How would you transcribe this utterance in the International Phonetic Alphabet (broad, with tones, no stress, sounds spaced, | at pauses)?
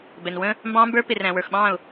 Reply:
b ɛ˨ n w ə̃˦ | m b ɑ̃ː˦ m b ə˞˦ p ɪ˨ r æ̃˨ w ə˞˨ x ɓ ɑ̃ː˦˨ ʊ̯